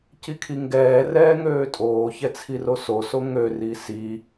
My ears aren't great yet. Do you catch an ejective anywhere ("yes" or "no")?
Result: yes